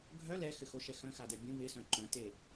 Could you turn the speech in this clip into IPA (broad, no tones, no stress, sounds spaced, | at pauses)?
ɡʱ œ l ɛ x ɘ x o ʃ ɛ x œ̃ x a d ɛ bʲ ũ β ɪ s œ̃ ǃ œ̃ t e